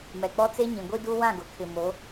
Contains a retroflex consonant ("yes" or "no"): no